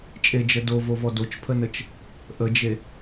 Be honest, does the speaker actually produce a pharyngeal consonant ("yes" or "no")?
no